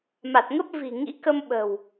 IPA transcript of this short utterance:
m a˨˩ t̚ ŋ ə˦˥ p̚ v i̤˨˩ ŋ ḭ˧˥ k ə˧ m ɓ ə̤˨˩ w

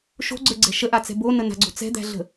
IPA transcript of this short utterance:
ʃ o̤ ɡ͡ǀ ə˞ ɡ͡ǀ ɛ̤ ʃ ə ʔ a t͡s ɛ̤ b o n ə n a̤ ɡ͡ǀ o̤ t͡s ɛ̤ d̪ æ̤ ɮ ə̤

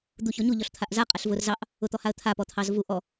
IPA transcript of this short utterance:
d̪ u ç ɔ ɲ u ʎ ɔ ɬ t̪ʰ a ʔ z a qʼ a ɬ v ʊ r z ɑ ʔ | ʊ t̪ ɔ h a ə̯ t̪ʰ a p ɔ t̪ʰ ɑ z v u ʔ ɔ

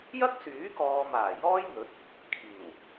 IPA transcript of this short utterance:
j ɐ˥ k̚ s yː˨˥ k ɔː˨ m aː˨˩ j ɔː˥ j n̪ ɵ˨˥ t̚ | kʰ iː˨˩ w

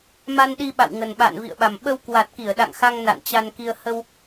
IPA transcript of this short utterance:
m a˧ n ɗ i˧ ɓ a̰˧˨ w ŋ ə˨˩ n ɓ a̰ː˧˨ n v ḭ˧˨ ə̯ ɓ a˨˩ m ɓ ə˧ w k w a˨˩ t̚ k i˧˩ ə̯ ɗ a̰˧˨ ŋ x a˧ ŋ n a̰˧˨ n t͡ɕ a˧ n k i˧ ə̯ h ə˧ w

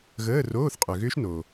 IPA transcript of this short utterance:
ɣ əː˧˥˧ r oː˧˥˧ θ qʼ ø˨ ɣ ʏː˦˥ ʃ n o˨

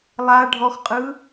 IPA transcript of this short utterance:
lˠ a ɖʱ ɔ x qʼ ɯ

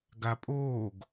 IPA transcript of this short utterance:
ɡ a pʼ oː ɡ

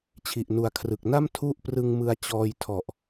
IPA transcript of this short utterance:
t͡ɕʰ i˨˩ ʔ n u˨˩ a̯ kʰ r ɯ˨˩ k̚ n a˥˩ m tʰ u˥˩ ʔ p r ɯ˧ ŋ m ɯ˧ a̯ t͡ɕ ɔː˧ j tʰ ɔ˨˩ ʔ

